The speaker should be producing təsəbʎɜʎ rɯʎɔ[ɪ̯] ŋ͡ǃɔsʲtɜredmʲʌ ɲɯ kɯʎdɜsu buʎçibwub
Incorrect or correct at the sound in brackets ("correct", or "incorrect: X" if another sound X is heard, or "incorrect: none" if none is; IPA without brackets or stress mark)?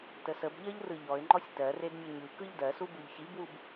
correct